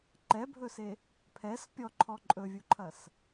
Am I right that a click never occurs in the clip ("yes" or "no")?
no